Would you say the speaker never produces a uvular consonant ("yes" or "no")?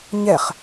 no